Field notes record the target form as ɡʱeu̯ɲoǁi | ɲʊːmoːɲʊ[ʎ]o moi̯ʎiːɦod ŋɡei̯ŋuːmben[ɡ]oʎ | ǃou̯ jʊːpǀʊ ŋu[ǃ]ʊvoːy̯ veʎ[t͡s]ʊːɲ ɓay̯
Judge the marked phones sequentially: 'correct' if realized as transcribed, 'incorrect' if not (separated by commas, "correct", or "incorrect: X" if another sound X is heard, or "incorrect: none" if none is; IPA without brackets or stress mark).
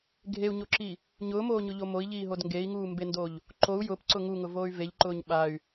correct, incorrect: d, incorrect: ŋ, incorrect: ǃ